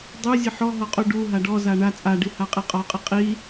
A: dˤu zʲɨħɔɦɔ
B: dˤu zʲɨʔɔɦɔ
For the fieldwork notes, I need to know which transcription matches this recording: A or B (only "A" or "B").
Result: A